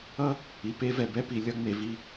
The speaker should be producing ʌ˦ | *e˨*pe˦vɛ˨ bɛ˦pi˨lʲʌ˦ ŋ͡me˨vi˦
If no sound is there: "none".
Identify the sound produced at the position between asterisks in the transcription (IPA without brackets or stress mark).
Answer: i˨